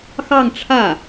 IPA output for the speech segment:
x ɑ˥˧ ŋ ʈ͡ʂʰ ä˥˩

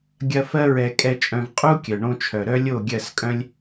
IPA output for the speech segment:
ɡʲ ɐ˧ f ɜ˦ ɹ ɛ˧ kʼ ɛ˧ t͡ʃʼ œ̃˧ v qʼ u˦ kʲ œ˨ ɳ õ˧ t͡ʃʰ œ˨ ɾ œ˦ lʲ o˦˨ ɡʲ ɜ˦˨ s kʼ œ̃˦ lʲ

